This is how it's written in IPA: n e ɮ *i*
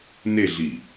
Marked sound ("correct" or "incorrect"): correct